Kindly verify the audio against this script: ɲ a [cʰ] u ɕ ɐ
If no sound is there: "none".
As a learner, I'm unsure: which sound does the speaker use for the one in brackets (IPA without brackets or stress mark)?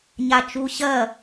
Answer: t͡ʃ